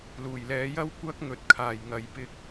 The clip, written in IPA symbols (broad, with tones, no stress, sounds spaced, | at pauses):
l uː˨˩ j l ɛː˨˧ j ɐ˥ w kʷ ɐ˥ k̚ ŋ ɵ˨ t̚ kʰ aː˨˩ j ŋ ɐ˨˧ j p ɪ˧ k̚